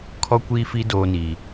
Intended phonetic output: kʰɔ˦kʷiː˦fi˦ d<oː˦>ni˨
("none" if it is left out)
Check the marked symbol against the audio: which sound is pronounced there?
oː˦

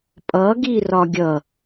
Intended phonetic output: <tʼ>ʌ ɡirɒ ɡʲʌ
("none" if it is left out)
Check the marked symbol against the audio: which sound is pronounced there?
pʼ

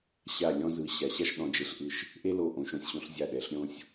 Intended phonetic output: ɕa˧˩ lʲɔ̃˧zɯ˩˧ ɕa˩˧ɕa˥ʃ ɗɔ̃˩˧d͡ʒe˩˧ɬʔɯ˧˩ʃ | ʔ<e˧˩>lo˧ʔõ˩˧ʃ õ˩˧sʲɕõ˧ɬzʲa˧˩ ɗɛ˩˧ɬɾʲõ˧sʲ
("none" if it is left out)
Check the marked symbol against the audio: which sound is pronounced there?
e˥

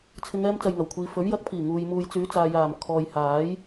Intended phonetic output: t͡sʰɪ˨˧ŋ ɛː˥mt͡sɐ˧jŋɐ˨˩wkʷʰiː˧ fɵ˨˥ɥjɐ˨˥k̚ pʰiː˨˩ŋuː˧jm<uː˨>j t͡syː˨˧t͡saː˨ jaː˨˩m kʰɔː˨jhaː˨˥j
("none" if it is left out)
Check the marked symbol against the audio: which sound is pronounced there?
uː˧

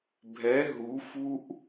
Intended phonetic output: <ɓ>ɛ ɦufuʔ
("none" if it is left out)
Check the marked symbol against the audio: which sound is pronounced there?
bʱ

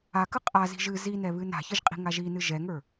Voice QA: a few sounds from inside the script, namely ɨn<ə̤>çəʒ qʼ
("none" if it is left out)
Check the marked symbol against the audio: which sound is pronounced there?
a̤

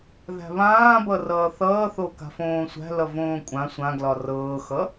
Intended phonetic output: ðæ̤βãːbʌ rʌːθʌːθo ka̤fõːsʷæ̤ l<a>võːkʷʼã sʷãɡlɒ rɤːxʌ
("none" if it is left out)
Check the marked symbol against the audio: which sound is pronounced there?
ʌ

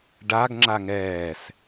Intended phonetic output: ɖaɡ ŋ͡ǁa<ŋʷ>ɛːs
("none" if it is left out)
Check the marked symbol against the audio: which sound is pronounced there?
ŋ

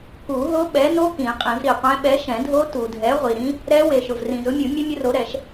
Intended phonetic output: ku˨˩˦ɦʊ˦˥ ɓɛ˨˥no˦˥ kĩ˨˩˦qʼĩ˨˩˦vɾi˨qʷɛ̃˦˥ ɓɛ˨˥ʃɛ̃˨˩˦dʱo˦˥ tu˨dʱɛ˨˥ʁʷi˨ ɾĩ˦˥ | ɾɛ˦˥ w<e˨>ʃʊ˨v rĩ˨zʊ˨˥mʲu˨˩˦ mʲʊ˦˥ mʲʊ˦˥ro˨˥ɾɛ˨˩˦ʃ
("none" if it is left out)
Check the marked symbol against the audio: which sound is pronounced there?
e˨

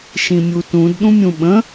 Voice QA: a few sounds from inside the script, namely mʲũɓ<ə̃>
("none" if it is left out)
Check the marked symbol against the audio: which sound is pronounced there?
ə̃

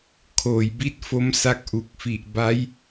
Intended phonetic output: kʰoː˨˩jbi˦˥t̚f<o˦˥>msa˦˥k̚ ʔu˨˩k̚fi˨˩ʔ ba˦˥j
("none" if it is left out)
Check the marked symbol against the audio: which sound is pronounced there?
o˦˥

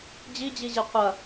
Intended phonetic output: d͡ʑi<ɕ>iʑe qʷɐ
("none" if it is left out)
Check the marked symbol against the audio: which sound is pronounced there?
d͡ʑ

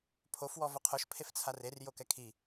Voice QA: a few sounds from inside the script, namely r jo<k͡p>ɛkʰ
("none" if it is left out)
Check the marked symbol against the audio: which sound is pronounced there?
k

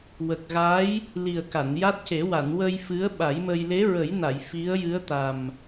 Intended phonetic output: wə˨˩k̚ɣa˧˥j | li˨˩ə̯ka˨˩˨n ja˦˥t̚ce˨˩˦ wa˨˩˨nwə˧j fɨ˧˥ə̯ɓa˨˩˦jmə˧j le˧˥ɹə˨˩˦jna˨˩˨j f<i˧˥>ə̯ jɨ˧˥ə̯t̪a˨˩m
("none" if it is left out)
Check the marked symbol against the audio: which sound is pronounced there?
i˧˥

